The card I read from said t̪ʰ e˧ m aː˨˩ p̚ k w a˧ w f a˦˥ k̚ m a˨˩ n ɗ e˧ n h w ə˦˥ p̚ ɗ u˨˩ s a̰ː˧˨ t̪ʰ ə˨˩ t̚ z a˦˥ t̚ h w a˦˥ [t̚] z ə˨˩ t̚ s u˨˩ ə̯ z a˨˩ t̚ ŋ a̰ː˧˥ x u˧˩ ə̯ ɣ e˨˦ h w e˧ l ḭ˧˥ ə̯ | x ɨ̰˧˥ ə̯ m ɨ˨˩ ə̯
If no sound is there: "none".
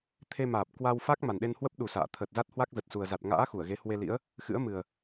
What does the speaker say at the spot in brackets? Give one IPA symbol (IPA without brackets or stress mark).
k̚